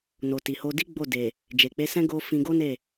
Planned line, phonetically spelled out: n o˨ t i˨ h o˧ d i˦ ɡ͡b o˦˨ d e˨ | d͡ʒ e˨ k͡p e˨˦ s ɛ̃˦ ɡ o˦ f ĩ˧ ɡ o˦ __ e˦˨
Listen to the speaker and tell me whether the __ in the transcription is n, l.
n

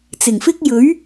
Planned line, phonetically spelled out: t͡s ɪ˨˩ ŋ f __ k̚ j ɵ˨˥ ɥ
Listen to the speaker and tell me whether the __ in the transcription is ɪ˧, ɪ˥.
ɪ˥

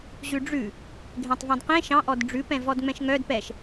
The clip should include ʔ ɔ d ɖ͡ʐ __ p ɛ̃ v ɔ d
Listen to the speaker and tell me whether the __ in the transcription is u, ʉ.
ʉ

